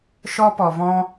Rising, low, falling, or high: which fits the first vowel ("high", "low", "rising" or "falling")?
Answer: high